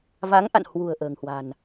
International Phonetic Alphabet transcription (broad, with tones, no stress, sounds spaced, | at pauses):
v a˨˦ ŋ ʔ a̰˧˨ n h w ṳ˨˩ ə̯ ʔ ə̤ː˨˩ ŋ h w a̤˨˩ n